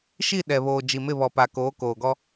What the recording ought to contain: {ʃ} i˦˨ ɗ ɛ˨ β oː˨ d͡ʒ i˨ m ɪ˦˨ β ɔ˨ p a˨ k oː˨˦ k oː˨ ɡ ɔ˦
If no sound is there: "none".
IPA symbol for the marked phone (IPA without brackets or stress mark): ʃ